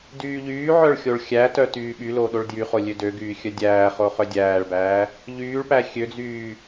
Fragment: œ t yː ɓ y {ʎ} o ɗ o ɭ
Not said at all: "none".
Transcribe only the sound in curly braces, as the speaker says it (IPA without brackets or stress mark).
l